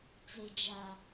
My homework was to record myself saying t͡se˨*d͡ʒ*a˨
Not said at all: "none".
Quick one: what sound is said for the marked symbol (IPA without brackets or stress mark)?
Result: d͡ʒ